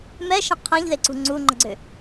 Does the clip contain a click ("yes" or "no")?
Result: yes